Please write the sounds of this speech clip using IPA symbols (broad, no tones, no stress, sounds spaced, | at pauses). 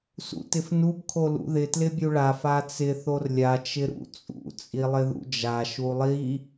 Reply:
s ṵ t ɪ f n u b kʰ o l ṵ ð ɪ t l ɪ bʲ u ɭ a f a t͡s ɪ θ o r lʲ a t͡ʃ ɪ ɾ ṵ t͡sʼ ṵ t͡sʼ i lˠ ɪ ð ṵ d͡ʒ a ʃ u lˠ i